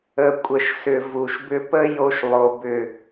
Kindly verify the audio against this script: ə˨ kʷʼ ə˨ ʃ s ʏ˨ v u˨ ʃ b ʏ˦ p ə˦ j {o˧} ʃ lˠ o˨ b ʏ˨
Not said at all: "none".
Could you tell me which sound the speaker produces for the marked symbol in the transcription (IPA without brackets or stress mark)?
o˧